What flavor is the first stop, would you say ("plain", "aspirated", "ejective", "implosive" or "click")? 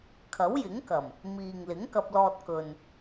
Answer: aspirated